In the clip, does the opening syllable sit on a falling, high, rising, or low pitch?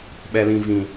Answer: low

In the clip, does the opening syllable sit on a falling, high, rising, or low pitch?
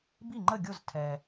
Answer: falling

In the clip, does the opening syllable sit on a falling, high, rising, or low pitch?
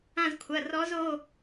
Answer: falling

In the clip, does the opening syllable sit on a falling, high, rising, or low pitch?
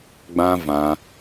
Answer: high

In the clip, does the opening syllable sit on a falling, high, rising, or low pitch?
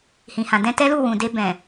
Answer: low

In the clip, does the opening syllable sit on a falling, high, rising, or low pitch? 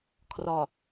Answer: low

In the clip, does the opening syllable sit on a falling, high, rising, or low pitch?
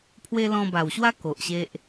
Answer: high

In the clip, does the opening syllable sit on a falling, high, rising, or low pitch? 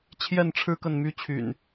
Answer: falling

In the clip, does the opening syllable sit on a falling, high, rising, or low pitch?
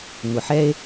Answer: low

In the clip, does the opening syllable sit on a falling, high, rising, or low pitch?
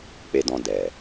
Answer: low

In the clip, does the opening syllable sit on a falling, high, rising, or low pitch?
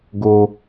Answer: low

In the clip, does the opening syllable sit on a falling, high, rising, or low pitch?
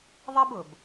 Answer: high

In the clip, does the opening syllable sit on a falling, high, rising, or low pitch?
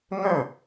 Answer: falling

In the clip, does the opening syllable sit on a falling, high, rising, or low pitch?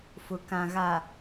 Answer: low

